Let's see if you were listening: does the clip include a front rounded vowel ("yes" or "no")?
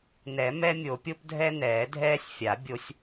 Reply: no